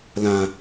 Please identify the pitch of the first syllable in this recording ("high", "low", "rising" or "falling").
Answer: low